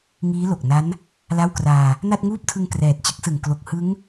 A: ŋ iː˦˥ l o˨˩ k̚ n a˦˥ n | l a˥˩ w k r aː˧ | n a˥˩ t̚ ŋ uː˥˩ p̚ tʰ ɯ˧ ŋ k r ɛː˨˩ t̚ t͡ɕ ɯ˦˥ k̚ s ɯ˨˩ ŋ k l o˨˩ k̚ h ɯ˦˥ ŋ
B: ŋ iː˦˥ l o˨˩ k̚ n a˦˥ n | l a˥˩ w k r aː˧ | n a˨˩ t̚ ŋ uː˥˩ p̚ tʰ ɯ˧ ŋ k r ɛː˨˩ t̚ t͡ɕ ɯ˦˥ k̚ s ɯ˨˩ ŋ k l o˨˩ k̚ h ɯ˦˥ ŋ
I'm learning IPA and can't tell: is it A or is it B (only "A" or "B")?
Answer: A